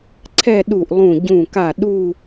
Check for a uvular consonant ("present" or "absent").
absent